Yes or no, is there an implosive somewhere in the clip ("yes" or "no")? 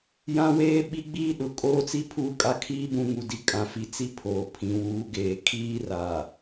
yes